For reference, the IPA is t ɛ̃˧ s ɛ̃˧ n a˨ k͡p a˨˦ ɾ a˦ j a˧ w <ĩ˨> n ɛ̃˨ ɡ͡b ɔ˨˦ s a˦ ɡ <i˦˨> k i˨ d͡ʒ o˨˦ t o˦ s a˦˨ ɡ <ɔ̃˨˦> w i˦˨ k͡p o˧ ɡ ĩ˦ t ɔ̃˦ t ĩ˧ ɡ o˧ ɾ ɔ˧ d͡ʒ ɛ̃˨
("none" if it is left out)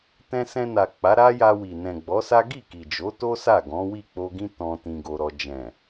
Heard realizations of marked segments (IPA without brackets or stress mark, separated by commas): i˨, i˦˨, ɔ̃˨˦